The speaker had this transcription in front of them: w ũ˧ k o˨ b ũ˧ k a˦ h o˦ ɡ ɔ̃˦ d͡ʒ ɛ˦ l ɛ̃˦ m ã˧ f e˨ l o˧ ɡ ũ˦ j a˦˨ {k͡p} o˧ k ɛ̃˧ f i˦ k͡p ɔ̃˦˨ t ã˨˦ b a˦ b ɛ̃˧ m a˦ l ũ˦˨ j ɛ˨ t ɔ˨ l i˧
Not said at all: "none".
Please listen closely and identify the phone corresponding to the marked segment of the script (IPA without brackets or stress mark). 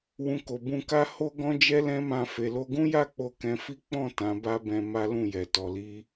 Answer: k͡p